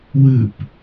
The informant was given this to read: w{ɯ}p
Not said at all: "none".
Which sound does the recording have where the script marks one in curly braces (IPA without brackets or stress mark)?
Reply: ɯ